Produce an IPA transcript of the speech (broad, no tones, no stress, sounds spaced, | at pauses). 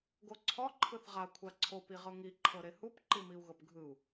ɡ o ǀʰ ɔ ǃʰ ɯ θ ʁ a kʷʰ a ǀʰ o p i ʁ ɤ ŋ i ǃʰ ɤ ɾ e h u p ǃ i m i u̯ ɣ ɤ p ɡʱ ɯ u̯